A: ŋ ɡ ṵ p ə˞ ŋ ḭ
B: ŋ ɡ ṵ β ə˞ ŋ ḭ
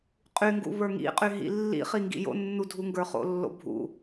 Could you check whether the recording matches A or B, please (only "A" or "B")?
B